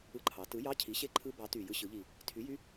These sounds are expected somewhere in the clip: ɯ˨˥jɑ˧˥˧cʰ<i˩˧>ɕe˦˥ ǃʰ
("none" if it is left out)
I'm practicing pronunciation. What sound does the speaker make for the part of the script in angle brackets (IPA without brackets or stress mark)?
i˨˥